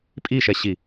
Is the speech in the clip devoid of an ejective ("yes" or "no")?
no